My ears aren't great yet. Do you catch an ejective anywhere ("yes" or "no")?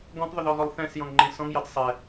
no